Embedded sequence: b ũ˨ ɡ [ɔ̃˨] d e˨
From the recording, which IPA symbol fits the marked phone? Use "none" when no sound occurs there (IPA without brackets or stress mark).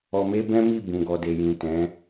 ɔ˨